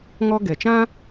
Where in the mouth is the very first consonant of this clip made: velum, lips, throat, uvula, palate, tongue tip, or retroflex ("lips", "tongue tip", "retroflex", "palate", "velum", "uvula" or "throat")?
velum